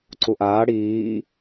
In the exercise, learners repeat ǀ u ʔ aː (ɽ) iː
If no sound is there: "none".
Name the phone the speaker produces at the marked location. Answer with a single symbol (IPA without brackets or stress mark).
ɽ